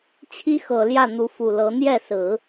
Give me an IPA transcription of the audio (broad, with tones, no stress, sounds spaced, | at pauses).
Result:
t͡ɕʰ i˥ x ɤ˨˩ l j ä˥˩ n̪ u˧˥ f u˨˩ l ɤ˧˥ n̪ j ɛ˥˩ s ɹ̩˨˩˦